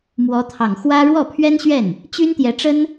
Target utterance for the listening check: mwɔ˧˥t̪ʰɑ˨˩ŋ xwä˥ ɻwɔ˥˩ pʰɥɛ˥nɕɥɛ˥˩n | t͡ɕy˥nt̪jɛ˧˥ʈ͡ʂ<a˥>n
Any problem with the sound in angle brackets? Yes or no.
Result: yes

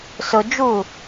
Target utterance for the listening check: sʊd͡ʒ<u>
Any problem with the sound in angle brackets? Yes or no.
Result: no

